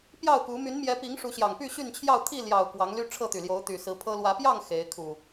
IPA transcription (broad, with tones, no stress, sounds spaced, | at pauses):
p j ɑ˥˨ ʊ̯ k u˨˦ m y˨˦ n m j ɛ˨˦ p i˨˦ ŋ ʂ u˨˦ ɕ j ɑ˨˩ ŋ p y˥˨ ɕ y˥˨ n t͡ɕʰ j ɑ˥˨ ʊ̯ t̪ʰ i˥˨ l j ɑ˨˩ ʊ̯ k w ɑ˨˦ ŋ l y˦ ʈ͡ʂʰ ɤ˥˨ t̪ y˨˩ l j o˨˦ ʊ̯ t̪ y˨˩ s ɹ̩˨˦ pʰ ɤ˦ l w ä˨˦ p j ɑ˥˨ ŋ x e˨˦ ɪ̯ kʰ u˨˩